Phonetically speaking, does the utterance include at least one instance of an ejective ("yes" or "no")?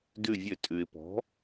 yes